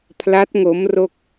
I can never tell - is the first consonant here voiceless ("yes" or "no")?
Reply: yes